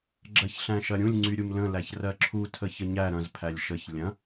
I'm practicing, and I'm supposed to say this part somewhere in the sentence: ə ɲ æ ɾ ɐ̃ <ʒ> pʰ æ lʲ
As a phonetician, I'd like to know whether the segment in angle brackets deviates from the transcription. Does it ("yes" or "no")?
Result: yes